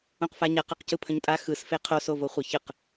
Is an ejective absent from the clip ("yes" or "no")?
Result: no